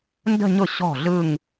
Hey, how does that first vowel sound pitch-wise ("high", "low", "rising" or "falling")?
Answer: falling